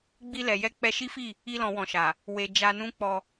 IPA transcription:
ɡ͡b i˧ l ɛ˨ j ɛ˧ k͡p ɛ˧ ʃ i˦ f i˦˨ | i˧ l ɔ̃˨ w ɔ̃˨ ʃ a˨ | w e˨ d͡ʒ a˧ n ũ˦ k͡p ɔ˧

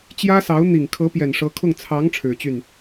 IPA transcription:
t͡ɕ j ä˥ s ɑ˧˥ ʊ̯ n̪ i˨˩ ŋ kʰ ɤ˧˥ p j ɛ˨˩ n ʂ ɤ˧˥ kʰ ʊ˥˩ ŋ t͡sʰ ɑ˧˥ ŋ ʈ͡ʂʰ ɻ̩˨˩ t͡ɕ y˥˩ n

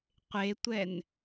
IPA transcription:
qʷ e tʷ ɛ n

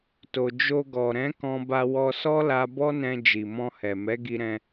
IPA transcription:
t o˨ d͡ʒ o˧ ɡ ɔ˨ ɾ ɛ̃˨˦ k ɔ̃˧ b a˧ w ɔ˧ s ɔ˦ l a˦ b ɔ˦ n ɛ̃˧ d͡ʒ i˨ m ɔ̃˧ h ɛ˨ m ɛ˨˦ ɡ i˧ ɾ ɛ̃˧

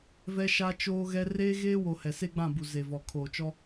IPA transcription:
v ɛ˦ ʃ a˦ t͡ʃ oː˦ ɣ ɛ˦ r eː˦ ɣ eː˦ w o˨ h ɛ˨ s e˦ ɡ͡b ã˦˨ b u˨ z e˨ v ɔ˨ kʰ oː˨ t͡ʃ ɔ˦

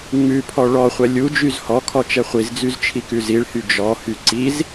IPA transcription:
ŋ͡m ʉ pʰ ɔ ɭ ɔ χʷ ɛ lʲ u d͡ʒ y z h ɔ kʰ ɔ t͡ʃ ɛ χʷ i z d͡z y z t͡ʃʰ i k ʉ z i ɭ h y d͡ʒ ɔ h y ǀ i z

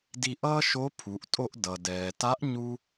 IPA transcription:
d i˧ ʔ ʌː˥ ʃ o˧˥ pʰ u˩˧ ʔ tʼ o˧ ʔ d ʌ˩ d ɛː˩ t a˧˥ ʔ ɲ u˥

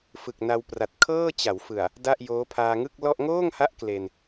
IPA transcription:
f ɯ˨˩ k̚ n a˧ w p r a˨˩ t̚ kʰ ɤː˥˩ t͡ɕ a˩˦ w f ɯ˨˩ a̯ | d a˥˩ ʔ j oː˦˥ pʰ aː˧ ŋ ɯ˥˩ k̚ l ɔ˥˩ ʔ ŋ oː˥˩ ŋ h a˦˥ ʔ k l e˧ n

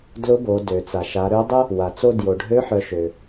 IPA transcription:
d l ʊ˧˥ b o˩˧ d ø˩ t͡s a˩ ʃ a˩˧ ɾ ø˧˥ dˤ ʊ˥ | w a˩ t͡s o˧ d j o˩ ɖʱ ø˧˥ ħ œ˩˧ ʃ ø˩

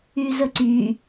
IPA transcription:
y z ə ǀ y

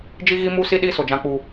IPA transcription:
d͡ʒ i˦ ɣ i˦ m u˦ s i˦ ɗ i˦ s o˨ d͡ʒ ã˦ k͡p u˦

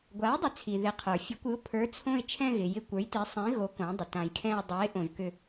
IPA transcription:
ɡʷ a˩˥ ɪ̯ dˤ ɪ˩˥ t͡sʰ i˩ ð ɪ˩˥ qʰ ə˞˩ fʲ ɨ˩˥ kʷ ɨ˩˥ ʊ̯ pʰ ə˞˩˥ t͡sʰ õ˦˨ ɪ̯ t͡ʃʰ ɛ̃˦˨ ɣ ɪ˩ j ɪ˦˨ kʷ ə˞˩˥ j t i˩˥ sˤ ĩ˩˥ ɣ o˩˥ k õ˩˥ dˤ ɪ˩ t ã˩ j kʰ ɛ̃˦˨ ə̯ dˤ o˩˥ ɪ̯ ʔ õ˩ ʒ k ʏ˦˨

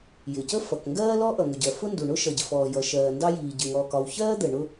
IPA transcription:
j ɪ˩ c ə˥ f ʌ˩ k ŋ ɡ ɜː˥ l ɔ˥ ʔ ʌ˩ ŋ ʊ˩ ɟ ɜ˩ f ʊ˥ n d u˩ ɳ ʊ˥ ʃ ʌ˩ ɟ ɪ˩ f ɔː˩ j ʌ˩ ʃ ɜː˩ n d ɑ˥ j iː˩ ɟ ɪ˩ ŋ ɔː˩ k ɒ˩ w ç ɜː˥ d̪ ə˩ ɳ ʊ˥

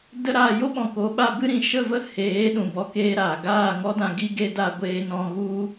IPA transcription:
d ə˦ ɾ aː˧ j o˦ ɓ ɔ̃˨ k o˨˦ ɓ a˧ b ɨ˦ ɾ ĩ˧ ʃ ə˦˨ v ə˦ h eː˨˦ ɗ ũ˨ b ɔ˧ k eː˦ ɾ aː˨ ɡ aː˦˨ ŋ ɔ˦ d ã˧ ɡ i˦ ɡ e˦ d a˦ ɡʷ eː˧ n ɔ̃˧ ɣ u˦

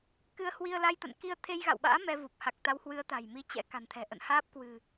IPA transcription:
k ɨ˧ ə̯ h w i˧ ə̯ l a˧ j t̪ ə̰˧˨ n k i˧ ə̯ t̪ʰ e˧ j ɣ a̰˧˨ w ɓ a̰ː˧˥ m ɛ˧ v u˨˩ p̚ h a˨˩ k̚ t̪ a˨˦ w h w ɨ˨˦ ə̯ t̪ a̤˨˩ j m i˨˦ t͡ɕ ɛ̰˧˥ k a̤˨˩ n t̪ʰ ɛ̤˨˩ ʔ ə̰˧˨ n h aː˦˥ p̚ k w ɨ̤˨˩

